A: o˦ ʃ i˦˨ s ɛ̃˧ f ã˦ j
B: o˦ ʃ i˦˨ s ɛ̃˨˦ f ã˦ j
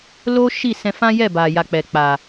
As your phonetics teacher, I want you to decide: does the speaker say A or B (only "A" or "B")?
A